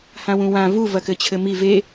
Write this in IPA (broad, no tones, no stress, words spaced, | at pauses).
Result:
hãwũwã vu vɐkɘt͡ɕʰɘmi ve